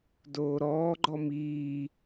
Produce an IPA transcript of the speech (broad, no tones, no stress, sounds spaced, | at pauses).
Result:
d oː ɾ ɔː ɡ͡ǃ ɔ m iː